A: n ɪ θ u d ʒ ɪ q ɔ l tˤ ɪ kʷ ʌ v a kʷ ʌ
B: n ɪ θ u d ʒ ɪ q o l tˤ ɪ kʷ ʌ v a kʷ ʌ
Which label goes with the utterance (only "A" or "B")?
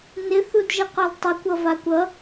A